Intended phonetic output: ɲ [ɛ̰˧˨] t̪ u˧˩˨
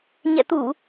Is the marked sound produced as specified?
yes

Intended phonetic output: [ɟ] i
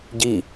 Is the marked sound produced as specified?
yes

